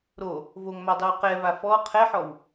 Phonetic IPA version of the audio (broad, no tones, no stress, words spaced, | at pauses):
ɾo | voŋmadˤɛw qɛva fɔ qʰɛħɔw